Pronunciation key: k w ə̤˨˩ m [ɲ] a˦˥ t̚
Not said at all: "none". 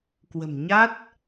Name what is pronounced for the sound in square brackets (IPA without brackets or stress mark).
ɲ